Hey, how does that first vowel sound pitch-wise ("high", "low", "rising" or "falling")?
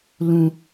low